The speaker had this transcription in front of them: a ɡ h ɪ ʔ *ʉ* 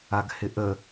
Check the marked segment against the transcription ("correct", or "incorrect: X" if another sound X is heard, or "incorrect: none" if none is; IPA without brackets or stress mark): incorrect: ə